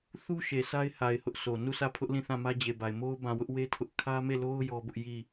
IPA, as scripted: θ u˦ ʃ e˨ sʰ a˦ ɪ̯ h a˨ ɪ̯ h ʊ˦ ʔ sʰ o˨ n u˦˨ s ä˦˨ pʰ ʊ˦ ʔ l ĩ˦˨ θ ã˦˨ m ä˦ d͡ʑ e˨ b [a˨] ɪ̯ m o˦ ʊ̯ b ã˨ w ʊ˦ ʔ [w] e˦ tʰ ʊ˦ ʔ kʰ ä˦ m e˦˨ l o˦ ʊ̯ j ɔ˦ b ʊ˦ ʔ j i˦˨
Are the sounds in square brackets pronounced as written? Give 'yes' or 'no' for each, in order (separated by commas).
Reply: yes, yes